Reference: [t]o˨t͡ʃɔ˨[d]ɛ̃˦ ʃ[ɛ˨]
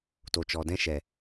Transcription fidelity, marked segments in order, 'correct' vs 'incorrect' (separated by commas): correct, correct, correct